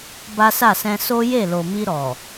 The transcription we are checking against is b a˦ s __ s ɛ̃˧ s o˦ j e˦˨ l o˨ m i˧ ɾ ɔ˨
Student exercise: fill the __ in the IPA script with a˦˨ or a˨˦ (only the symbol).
a˦˨